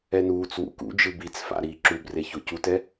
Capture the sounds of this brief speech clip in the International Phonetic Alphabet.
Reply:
ɛ n uː t͡s w ṵ k ṵ d͡ʒ ɯ b i t͡s f a̰ ɾ iː ǁ u b r e ç o c u t ɛ

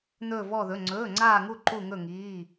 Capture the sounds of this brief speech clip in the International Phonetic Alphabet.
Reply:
n̪ ɵː˥˧ v ɔ˥˧ ð ɵ˧˥˧ ŋ͡ǀ ɵː˧˥˧ ŋ͡ǀ aː˥˧ ŋ u˥˧ ǃ u˥˧ ŋ ɵ˥˧ ŋ iː˧˥˧

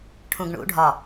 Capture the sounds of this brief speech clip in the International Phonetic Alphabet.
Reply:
ʈʰ ũ ɡ ɳ ṵ ɖʱ ɒ

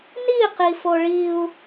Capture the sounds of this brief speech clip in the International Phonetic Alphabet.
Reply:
n i q i f o ɭ i u̯

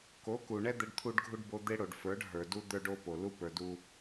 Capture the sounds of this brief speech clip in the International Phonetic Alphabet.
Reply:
k o˨˦ k u˨ ɳ ɛ˦ d̪ ɛ˦ ɖ t̪ʰ u˦ ɖ ɡʱ u˦ ɖ b o˦ d̪ e˦ ɽ o˨ ɖ f ə˞˨˦ ɖ ɦ ə˞˨ d u˦ d̪ ə˞˦ ɖ o˦ p o˨ l u˦ p ə˞˨ d u˦

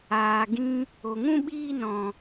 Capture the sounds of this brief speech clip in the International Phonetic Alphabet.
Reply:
aː˨ ɡ ĩ˦ | o˨ ŋ ũ˦ ɓ iː˦ n ɔ̃˨

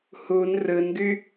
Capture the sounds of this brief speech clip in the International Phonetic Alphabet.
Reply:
h u n r ɯ n ɡ y

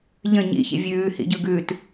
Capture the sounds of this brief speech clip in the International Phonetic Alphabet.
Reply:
ʎ ə̃ ɲ ḭ ç ḭ vʲ ʉː h ḭ ɟ ɯ ɡ ʉː t

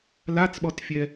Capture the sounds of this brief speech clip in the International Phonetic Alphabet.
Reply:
l a t͡s ɓ ɔ t fʲ ɛ

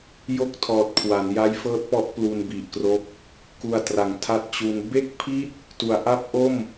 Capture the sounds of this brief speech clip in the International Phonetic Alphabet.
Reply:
j o˥˩ k̚ tʰ ɔː˨˩ t̚ kʰ w a˩˦ n j a˦˥ j f ɤː˦˥ t̚ p ɔ˦˥ ʔ p l u˧ n b i˨˩ ʔ k r o˦˥ k̚ | k u˧ a̯ t r a˨˩ ŋ tʰ a˥˩ t̚ t͡ɕ u˦˥ n b e˥˩ k̚ pʰ i˥˩ t̚ | t u˩˦ a̯ ʔ a˦˥ p̚ ʔ o˥˩ m

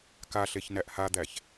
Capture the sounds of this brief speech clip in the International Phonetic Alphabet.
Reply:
k a ɬ e ç n æ ʔ h a d̪ æ ç

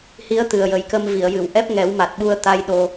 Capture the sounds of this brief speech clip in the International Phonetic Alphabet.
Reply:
h i˧˥ ə̯ t̪ ɨ˨˩ ə̯ j ə˨˩ j k ə˧ m v i˨˩˨ ə̯ j ɨ˨˩˨ w ʔ ɛ˦˥ p̚ ŋ ɛ˨˩˦ w m a˨˩ t̚ ɓ u˧ ə̯ t̪ a˧ j ɗ o˧

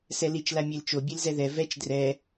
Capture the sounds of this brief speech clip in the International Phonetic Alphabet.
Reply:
s ɛ l i t͡ʃ l a mʲ e l t͡ʃ o bʲ e l z ɛ ð ɛ v ɛ t͡ʃ d r ɛ

